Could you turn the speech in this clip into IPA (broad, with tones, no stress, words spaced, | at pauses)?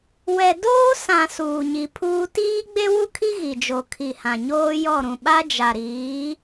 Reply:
wɛ˨doː˦sã˨ suː˨ɲi˨pʰuː˦ tiː˦ɡ͡be˦wu˦kʰi˦ ɣi˨d͡ʒo˨kʰi˨ hã˨ɲoː˦jɔ˦˨ɾũ˨ ɓa˦d͡ʒa˨ɾiː˨˦